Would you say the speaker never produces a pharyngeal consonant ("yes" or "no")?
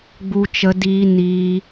yes